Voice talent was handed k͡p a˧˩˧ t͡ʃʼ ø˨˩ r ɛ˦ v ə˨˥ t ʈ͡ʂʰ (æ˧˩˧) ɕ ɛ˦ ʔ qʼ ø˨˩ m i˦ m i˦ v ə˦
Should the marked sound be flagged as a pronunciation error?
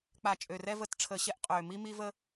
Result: yes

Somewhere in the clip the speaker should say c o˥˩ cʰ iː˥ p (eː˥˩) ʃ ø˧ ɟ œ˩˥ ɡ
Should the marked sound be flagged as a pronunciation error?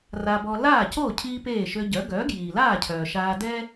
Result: no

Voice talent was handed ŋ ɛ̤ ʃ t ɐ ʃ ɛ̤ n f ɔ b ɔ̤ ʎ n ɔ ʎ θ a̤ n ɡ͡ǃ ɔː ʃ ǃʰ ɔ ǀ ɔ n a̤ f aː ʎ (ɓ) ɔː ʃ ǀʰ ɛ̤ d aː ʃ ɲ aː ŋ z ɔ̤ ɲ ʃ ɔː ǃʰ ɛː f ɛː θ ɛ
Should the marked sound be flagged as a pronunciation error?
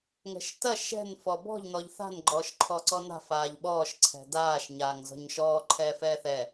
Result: no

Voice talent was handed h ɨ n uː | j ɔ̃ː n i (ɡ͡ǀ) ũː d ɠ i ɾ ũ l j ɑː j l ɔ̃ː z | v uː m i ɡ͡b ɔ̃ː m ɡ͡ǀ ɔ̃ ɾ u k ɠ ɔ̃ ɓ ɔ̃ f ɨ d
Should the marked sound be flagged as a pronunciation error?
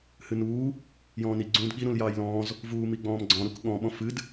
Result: no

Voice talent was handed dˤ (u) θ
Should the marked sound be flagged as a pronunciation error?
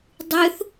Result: yes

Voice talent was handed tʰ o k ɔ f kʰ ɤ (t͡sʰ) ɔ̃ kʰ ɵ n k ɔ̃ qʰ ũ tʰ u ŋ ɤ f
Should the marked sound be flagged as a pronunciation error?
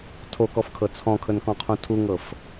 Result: no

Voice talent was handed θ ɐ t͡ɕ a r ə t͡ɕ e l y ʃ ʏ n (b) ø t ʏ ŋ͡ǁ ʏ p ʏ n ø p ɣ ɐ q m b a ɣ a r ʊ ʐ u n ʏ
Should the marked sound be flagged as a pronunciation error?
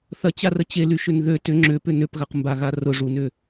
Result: yes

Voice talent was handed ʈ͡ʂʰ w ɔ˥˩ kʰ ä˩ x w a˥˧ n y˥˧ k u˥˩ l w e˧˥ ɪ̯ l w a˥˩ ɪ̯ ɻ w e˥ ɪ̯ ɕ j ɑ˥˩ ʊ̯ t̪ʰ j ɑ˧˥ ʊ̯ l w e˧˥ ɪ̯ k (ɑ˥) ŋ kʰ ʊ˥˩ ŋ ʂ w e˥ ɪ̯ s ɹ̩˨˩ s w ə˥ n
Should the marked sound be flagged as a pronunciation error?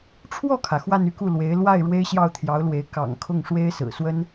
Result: yes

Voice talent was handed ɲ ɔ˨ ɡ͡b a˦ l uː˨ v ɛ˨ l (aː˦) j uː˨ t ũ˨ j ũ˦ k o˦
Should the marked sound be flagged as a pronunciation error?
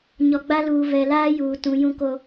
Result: no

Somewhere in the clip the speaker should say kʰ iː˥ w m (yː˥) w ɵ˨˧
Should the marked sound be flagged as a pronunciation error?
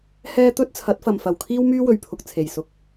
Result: no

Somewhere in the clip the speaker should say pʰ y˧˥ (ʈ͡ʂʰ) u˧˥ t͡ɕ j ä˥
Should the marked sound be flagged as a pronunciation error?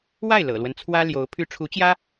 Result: no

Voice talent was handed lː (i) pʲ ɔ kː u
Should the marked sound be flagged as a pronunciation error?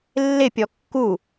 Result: yes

